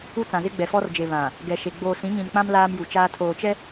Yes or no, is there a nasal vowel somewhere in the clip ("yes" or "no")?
yes